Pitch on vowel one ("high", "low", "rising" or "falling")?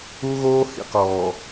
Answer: high